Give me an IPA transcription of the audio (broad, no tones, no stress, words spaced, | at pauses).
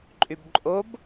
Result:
ǃʼybǃʼob